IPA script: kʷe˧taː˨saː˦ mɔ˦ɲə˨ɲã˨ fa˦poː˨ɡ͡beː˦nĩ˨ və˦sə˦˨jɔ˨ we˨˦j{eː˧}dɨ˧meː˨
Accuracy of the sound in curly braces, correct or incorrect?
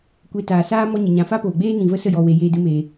correct